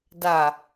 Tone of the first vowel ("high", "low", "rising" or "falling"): low